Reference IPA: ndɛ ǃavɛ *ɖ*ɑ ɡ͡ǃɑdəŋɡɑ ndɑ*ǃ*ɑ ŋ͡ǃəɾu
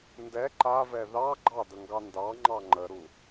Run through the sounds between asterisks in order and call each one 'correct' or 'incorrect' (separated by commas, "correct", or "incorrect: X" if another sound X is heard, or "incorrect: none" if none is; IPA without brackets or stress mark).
incorrect: ð, incorrect: ŋ͡ǃ